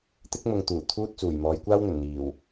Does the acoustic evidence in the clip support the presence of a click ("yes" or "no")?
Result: no